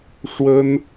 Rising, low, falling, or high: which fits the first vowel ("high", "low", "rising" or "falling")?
high